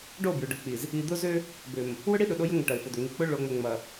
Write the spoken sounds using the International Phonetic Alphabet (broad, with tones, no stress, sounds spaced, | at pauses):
ɖ o˦˨ b j ʏ˨ ɖ ə˨ k͡p i˨ z | i˨ d̪ ʊ˦ z ʏ˦ | b ʏ˨ m | w ʏ˦ ɽ i˦ ɗ ʊ˨ ɗ o˦ j ʊ˦ ŋ ə˨ ʈ ɐ˨ ɪ̯ f ʊ˨ d̪ ʏ˨ ŋ i˨ k͡p ʊ˦ ɭ o˨ ŋ͡m ʏ˨ ŋ͡m ɐ˨